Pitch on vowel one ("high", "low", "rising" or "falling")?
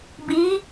rising